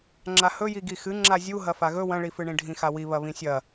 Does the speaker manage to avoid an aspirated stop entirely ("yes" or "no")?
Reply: yes